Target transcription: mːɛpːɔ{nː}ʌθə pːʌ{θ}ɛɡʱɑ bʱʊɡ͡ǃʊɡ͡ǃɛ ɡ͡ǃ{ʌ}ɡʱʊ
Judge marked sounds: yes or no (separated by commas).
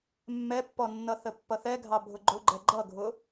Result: yes, yes, yes